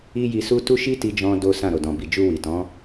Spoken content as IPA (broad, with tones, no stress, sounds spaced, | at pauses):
i˦ j i˧ s u˦ t u˦ ʃ i˦ t i˧ d͡ʒ ɔ̃˧ d o˦ s ã˦˨ ɾ o˨ d ɔ̃˨ b i˨ d͡ʒ u˧ w i˨ t ɔ̃˨˦